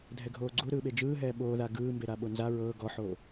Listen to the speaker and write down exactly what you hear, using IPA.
dʱ ɛ ɡʱ oː ɡ͡ǀ u ɾ ɯː ɓ e d͡ʒ ɯː ɦ ɛː ɓ oː ð a ɡ ɯː m b e ɾ a ɓ o n z a ɹ ɤː ɡ ɔ ħ o

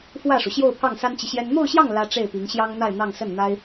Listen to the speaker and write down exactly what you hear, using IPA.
f w ä˥˩ ʂ u˩ ɕ j o˥˧ ʊ̯ pʰ ɑ˥˩ ŋ s a˥ n t͡ɕ i˨ ɕ j ɛ˥ n n̪ o˥˧ ʊ̯ ɕ j ɑ˥˩ ŋ l ä˥ ʈ͡ʂ e˥˩ ɪ̯ p i˧˥ ŋ ɕ j ɑ˥ ŋ n̪ a˥˧ ɪ̯ n̪ ɑ˥˧ ŋ s ə˥˩ n n̪ a˥ ɪ̯

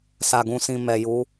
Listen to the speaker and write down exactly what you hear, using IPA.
s a˨ ɡ ũ˨ s ĩ˨ m ɛ˨ j u˨˦

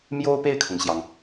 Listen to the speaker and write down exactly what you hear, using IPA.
m j o˥ ʊ̯ p e˥˩ ɪ̯ kʰ ʊ˩ ŋ ɕ j ɑ˩ ŋ

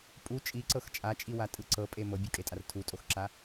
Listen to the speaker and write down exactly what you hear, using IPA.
pʼ u t͡ʃʼ i ǀ ɤ x t͡ʃʼ a t͡ʃʼ i w a tʼ ɯ ǀ ɤ pʼ e m ɤ bʲ o kʼ e tʼ a r tʰ u tʼ o x ǁ a

